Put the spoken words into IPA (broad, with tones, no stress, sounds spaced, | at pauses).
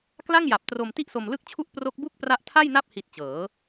k l a˥˩ ŋ j a˨˩ p̚ t r o˧ m t i˥˩ ʔ s o˧ m l ɯ˥˩ k̚ t͡ɕʰ u˥˩ ʔ p r o˦˥ k̚ b u˥˩ k̚ p r a˦˥ ʔ tʰ a˥˩ j n a˥˩ p̚ h i˨˩ t̚ t͡ɕ ɤː˩˦